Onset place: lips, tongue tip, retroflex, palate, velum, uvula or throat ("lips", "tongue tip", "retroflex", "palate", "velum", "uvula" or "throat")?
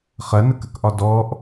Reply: uvula